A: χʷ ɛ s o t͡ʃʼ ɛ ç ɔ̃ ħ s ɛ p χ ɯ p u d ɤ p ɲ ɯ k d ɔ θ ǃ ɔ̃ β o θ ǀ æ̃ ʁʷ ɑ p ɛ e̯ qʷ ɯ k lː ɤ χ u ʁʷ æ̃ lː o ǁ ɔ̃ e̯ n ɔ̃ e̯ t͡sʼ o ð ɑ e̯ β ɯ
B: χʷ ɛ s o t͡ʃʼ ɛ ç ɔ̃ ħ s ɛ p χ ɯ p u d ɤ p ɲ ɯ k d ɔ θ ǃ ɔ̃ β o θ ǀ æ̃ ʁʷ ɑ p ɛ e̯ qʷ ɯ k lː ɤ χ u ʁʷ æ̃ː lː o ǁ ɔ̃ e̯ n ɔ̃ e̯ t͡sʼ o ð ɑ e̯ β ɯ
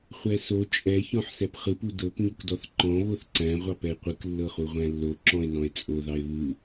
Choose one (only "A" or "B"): A